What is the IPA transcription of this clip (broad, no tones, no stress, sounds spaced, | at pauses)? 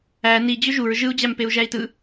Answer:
æ n i d͡ʑ ø ʒ u ɹ ʒ ɯ u̯ d͡ʑ æ m p e u̯ ʒ æ i̯ t ɯ